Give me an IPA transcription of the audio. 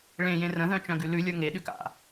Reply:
ɭẽjẽ rə̃ðœ̃t͡ʃœ̃ɡʉ lʉlʲə˞ ŋeɗʉk a̰

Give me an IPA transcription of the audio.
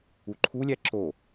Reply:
uǃʰulʲæ ǁo

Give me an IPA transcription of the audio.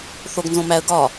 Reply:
θoɡ nzõmæə̯ ɡɒ

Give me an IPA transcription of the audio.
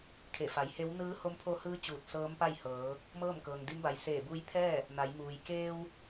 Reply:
kʰe˧˩fa˩˧jhe˧˥w nɯː˧˥ho˧˥mpʰo˧hɯː˧˥ t͡ɕuː˧˩t̚sɤː˧˥mpa˥˨jhɤː˩˧ | mɤː˥˨mkɤː˩ŋ di˧˥mba˩j seː˧˩buː˧jt̪ʰɛː˥˨ | na˩˧jmuː˩j keː˧w

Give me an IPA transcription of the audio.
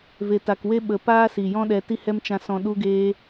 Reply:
ve˨ta˨kwe˦ ɓə˨ paː˦si˨jɔ̃˦ɗɛ˧ ti˦hɛ˦mt͡ʃã˧sɔ̃˧ ɗu˦ɡeː˦

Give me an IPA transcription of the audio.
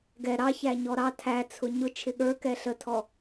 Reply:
ɡɛ ɾɑçæ ɲɔɾɑ tʰæt͡sʰʊ ɲʊ t͡ʃʰɪɠə˞kɛ ɬətʰɔ

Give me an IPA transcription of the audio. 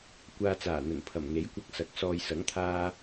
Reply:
kʷaː˨t͡saː˨˩n̪ɵ˨˩npʰɐ˨˩m ŋe˨˥jkʷɐ˧k̚sɐ˨k̚ sɔː˨jsɐ˨˥ŋt̪ʰaː˧

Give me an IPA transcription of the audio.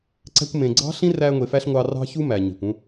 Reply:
ǀæ̤˧kʷmẽ˨ɡ͡ǀɑ̤˦ ɬĩ˦ræ˧ŋʷe˨fæ˧ɬ ŋʷɑ˧ rɑ̤˦çu˦ mæ˨ ɲe̤˨kʷũ˦

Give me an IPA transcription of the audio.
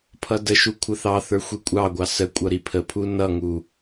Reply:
pʰʌdəʃu kʷʰəθɑθə˞ xʷikʷʼɑɡʷɑ səkʷʼʌ ɾipʰəpʰu nʌŋu

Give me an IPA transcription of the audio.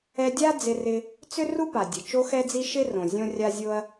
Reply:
ɛ˧dʲa˥ d͡zɪ˧rɪ˧ | t͡sʏ˥ru˥pa˩ dʲə˩ t͡ʃo˥xɛ˥d͡zi˥ ʃɪ˥ rõ˩zʲõ˥rʲa˥zʲo˥ɐ̯

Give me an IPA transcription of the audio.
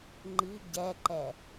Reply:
ŋ͡ǃi ɟɛǃɛ

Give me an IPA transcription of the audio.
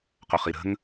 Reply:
qoχiɾə̤ŋ

